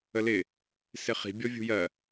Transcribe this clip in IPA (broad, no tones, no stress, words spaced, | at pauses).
əlɪ | sɪχi̤ bʲɔvʲṳjɜ